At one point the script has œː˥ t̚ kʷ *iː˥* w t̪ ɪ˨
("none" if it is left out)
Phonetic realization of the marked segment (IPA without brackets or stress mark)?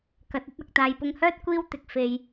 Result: iː˥